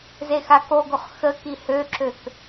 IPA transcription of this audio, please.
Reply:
z e x a k o ɡ o χ x ə k i h ø ǁ ø k

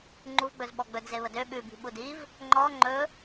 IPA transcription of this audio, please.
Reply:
ŋ͡ǃ u v ɡ͡b ɵ z ɓ ɔ ɡ͡b ɵ d z e β ə d ø ɓ ʉ b i̤ ɓ u d i v | ŋ͡ǃ ɔ ŋ͡ǃ ɵ

